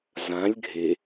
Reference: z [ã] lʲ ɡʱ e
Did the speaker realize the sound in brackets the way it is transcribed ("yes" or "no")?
yes